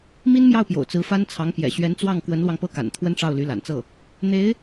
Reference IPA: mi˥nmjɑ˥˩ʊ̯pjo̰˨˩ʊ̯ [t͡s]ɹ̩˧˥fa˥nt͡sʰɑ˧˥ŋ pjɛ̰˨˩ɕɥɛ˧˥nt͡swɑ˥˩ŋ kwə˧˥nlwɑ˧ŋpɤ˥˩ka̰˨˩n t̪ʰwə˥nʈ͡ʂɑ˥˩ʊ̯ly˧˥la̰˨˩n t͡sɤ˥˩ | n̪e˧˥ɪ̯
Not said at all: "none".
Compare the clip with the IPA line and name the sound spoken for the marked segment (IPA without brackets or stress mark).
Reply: t͡s